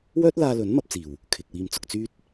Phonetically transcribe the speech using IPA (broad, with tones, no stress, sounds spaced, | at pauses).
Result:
w œː˥ t̚ l aː˧ l ɵ˨˥ n m ɐ˧ p̚ t͡s iː˨˩ w | kʰ ɪ˨ k̚ w iː˧ m t͡s ʊ˧ k̚ t͡s yː˥ t̚